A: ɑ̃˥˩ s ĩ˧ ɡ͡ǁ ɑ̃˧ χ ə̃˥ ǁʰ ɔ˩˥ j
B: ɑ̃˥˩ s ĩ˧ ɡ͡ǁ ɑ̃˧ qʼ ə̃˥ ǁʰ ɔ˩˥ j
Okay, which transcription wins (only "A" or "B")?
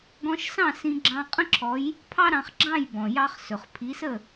B